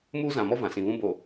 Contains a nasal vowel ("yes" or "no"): yes